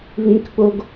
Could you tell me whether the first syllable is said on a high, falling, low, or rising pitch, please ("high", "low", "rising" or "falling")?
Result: high